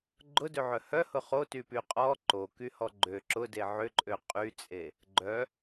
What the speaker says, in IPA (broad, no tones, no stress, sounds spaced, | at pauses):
ɡ͡ǃ ʊ d ø ʕ œ h œ h ʊ χ o t y p y qʼ ɔ ǃ o k y h ɔ ɡ͡ǃ ø ǁ ʊ d e ʕ ʏ ǃʼ ø qʼ y t͡sʼ e | ɡ͡ǃ œ